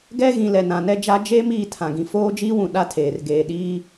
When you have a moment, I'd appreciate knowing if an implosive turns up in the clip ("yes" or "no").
yes